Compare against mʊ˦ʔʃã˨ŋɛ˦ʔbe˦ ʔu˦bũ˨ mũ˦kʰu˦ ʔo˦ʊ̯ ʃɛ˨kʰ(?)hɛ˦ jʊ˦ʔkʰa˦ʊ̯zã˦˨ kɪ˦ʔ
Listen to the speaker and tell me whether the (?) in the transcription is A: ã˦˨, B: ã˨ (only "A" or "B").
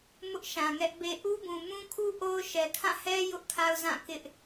A